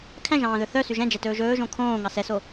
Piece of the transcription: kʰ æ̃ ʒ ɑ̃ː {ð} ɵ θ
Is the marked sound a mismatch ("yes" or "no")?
no